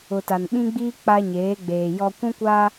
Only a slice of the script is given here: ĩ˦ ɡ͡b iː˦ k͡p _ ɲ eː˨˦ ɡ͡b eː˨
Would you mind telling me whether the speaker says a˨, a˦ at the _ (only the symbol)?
a˦